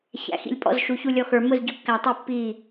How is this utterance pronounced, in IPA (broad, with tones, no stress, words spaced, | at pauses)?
çæ̰˨˩˦ xḭ˨˩˦lʲpʼɔ̰˥˩z ʃu˨˩˦ çu˥˩lʲɔ˥˩ xə˞˨˩˦ mʊ˥˩z ɟʊ˨˩˦kːæ˨˩˦tˤi˨˩˦ pːiː˥˩